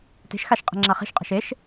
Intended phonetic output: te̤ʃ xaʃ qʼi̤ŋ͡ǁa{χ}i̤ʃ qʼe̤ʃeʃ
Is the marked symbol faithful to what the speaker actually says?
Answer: yes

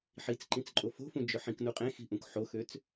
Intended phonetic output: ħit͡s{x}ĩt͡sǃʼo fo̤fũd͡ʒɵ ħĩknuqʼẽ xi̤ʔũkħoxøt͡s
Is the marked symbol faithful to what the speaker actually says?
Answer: no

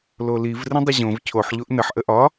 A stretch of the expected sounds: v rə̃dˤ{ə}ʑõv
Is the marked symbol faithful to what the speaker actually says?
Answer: yes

